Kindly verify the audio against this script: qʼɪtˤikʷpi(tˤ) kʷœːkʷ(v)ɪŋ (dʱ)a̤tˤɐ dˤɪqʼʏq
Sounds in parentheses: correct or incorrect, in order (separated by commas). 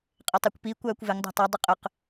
incorrect, correct, incorrect